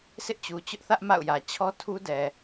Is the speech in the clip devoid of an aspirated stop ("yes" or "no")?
no